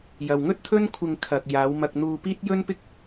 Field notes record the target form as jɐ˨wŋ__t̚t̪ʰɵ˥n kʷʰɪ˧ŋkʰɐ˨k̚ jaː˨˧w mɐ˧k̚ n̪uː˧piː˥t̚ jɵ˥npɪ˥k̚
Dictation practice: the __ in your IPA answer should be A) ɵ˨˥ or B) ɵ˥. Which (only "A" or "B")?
B